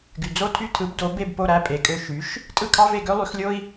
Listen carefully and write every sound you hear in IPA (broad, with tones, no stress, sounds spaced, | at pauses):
ɡ y˩ d͡z o˥˩ tʰ y˥˩ tʰ ɯ˩˥ b d o˩˥ b e˥˩ b p o˥˩ ɾ æ˥˩ pʼ e˩ kʼ ø˥˩ ʃ y˩˥ ʃ | tʼ ɯ˥˩ kʰ ɑ˥ v e˥˩ ɡ ø˥ lˠ y˩˥ x lʲ o˥ i̯